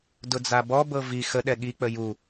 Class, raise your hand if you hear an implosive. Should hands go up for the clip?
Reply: yes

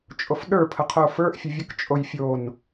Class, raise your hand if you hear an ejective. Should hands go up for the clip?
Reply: yes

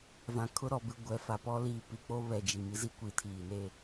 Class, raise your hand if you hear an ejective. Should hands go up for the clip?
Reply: no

